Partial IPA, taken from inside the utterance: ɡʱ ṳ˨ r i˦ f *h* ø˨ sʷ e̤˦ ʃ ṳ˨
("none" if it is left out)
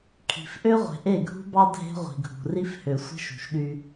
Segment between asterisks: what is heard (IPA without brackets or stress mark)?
h